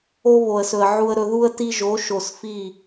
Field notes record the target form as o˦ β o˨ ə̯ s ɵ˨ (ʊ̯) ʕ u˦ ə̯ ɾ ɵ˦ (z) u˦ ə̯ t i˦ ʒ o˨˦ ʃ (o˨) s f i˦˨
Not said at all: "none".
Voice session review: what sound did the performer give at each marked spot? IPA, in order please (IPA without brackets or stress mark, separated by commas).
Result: ə̯, ð, o˨